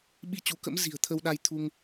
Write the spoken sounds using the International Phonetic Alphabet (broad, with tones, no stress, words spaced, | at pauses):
ɓi˧ t͡ɕu˨˦kə̰˧˥m zi̤˨˩ə̯t̪ʰə˧wɗa˧j t̪ʰu˧ŋ